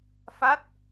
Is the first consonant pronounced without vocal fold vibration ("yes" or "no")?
yes